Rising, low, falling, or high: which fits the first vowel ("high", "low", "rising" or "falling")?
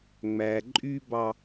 low